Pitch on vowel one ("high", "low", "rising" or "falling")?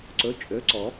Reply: rising